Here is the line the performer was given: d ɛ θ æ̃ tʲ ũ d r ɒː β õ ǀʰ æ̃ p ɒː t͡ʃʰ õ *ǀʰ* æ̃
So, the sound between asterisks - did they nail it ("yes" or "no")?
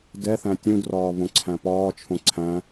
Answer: yes